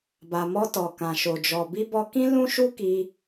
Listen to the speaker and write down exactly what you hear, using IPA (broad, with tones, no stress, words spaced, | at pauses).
ba˨mɔ˧ tɔ˨kã˨ʃo˨ d͡ʒɔ˨bi˧bɔ˧kĩ˦ lũ˦ʃu˦ ki˧